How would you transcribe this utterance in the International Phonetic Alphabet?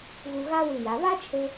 ɣ u˧ ɣ a˥ w ʉ˧˩ j a˩˧ β a˥ t͡ʃʰ ɵ˧

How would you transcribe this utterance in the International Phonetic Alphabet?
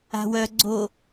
a̤ w œ ɡ͡ǀ o

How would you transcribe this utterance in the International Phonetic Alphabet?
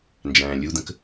n d͡ʒ æ̃ː lʲ u d̪ ə̃ k

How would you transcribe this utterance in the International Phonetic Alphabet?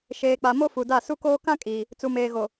ʃ eː˨ k͡p a˨ m o˦ f u˨ d a˦˨ s u˦ k oː˦ k ã˦ kʼ iː˨ | t͡s u˨ m eː˨ ɣ o˨

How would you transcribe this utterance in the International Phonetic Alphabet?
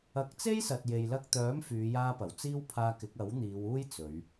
ɐ˨˥ k̚ t͡s e˥ j s ɐ˨ t̚ j e˨ j l ɐ˧ k̚ t̪ œː˨˥ m f yː˨˧ j aː˧ p ɐ˨˩ w t͡s iː˥ w pʰ aː˧ k ɪ˨˥ k̚ ɐ˨˥ w n̪ iː˨˧ w uː˥ j t͡s ɵ˨˧ ɥ

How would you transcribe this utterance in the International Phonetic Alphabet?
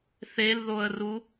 θ e l ð o ə̯ r u

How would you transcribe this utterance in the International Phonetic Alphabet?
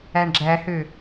æ ɳ ɡ͡ǁ æ h ø

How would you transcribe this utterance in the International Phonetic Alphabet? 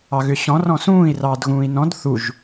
ɑ ɣ ʏ ɕ ɔ̃ r ɔ̃ s ũː i̯ r ɑː d ɣ ũː i̯ n ɔ̃ d θ u ʒ

